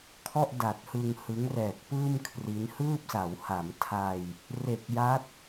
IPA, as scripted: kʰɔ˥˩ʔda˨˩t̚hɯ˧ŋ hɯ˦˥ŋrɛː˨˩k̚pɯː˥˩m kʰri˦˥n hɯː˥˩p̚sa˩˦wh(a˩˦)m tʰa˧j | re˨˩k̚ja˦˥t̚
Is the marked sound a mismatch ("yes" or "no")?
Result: no